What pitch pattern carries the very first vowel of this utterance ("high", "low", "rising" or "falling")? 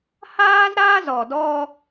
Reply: high